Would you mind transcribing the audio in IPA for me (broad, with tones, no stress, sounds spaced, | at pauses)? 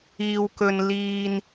iː˧ w k ɵ˧ n l iː˧ n